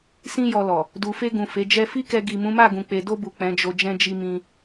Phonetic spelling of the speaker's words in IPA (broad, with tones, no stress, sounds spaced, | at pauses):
s ĩ˦ j ɔ˧ l ɔ˨ | d u˨ f e˧ ɡ ũ˨ f e˨˦ d͡ʒ ɛ˦ f i˦ k ɛ˧ ɡ i˨ m ũ˨˦ m a˦˨ ɡ ũ˨ k͡p e˨ d o˧ b u˨ k͡p ɛ̃˨˦ d͡ʒ o˧ d͡ʒ ɛ̃˦ d͡ʒ i˧ m ĩ˧